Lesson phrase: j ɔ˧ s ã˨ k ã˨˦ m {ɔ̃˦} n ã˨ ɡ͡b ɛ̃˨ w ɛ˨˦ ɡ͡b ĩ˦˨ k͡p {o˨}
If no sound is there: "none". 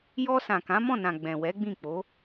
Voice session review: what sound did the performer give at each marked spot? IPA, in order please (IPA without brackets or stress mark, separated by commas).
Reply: ɔ̃˦˨, o˨˦